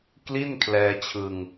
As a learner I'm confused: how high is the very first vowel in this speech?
high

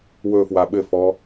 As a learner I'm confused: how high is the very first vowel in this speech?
mid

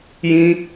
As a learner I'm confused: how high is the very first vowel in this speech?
high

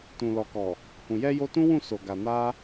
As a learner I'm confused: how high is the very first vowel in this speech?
high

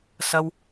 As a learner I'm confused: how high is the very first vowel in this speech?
low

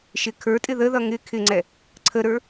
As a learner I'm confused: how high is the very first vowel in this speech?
high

